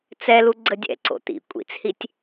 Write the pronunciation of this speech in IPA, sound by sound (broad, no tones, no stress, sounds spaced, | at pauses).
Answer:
t͡s ɛ l u ɡ͡ǀ ə dʲ ɛ̰ ǀ o̰ t̪ ḭ kʷʼ ḭ t͡s h i tʲ